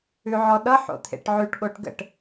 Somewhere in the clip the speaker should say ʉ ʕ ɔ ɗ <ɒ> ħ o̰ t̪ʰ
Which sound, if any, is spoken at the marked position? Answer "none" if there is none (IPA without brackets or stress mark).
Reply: ʌ